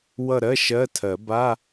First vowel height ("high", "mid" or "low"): mid